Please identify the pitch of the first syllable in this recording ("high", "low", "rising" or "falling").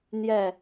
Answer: falling